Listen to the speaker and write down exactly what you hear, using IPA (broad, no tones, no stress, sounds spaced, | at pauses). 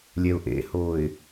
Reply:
lʲ ɛ ʊ̯ ʔ ḛ h o ɪ̯